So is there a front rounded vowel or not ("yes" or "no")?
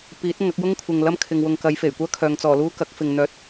yes